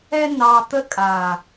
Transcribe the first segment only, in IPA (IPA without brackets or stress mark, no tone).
ɛ